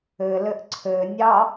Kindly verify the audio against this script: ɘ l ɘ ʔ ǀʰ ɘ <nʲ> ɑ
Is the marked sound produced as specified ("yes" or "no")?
yes